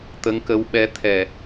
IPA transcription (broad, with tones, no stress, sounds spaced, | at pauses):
t̪ ə˧˥ ŋ k ə˧˥ w ɓ ɛ˧˥ t̪ʰ ɛ˨˩